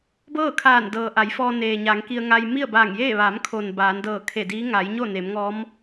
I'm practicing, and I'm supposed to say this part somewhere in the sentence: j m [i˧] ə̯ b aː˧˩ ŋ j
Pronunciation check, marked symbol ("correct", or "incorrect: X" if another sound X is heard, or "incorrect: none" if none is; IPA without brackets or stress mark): incorrect: i˥˨